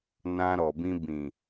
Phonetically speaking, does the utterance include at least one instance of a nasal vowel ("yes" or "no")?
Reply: yes